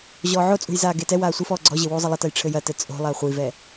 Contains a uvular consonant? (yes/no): yes